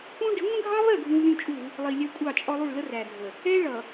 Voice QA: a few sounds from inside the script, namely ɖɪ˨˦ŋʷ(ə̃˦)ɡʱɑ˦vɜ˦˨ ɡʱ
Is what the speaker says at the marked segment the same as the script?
yes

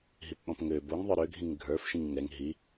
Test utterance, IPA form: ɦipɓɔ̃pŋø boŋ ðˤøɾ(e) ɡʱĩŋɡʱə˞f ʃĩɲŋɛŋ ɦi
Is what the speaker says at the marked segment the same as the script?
no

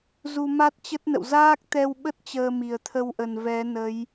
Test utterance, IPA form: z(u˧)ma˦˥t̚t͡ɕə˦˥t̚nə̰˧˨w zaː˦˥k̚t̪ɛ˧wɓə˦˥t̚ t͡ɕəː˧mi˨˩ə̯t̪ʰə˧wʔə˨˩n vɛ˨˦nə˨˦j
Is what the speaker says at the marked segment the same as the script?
yes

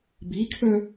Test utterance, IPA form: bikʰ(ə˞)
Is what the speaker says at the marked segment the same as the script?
yes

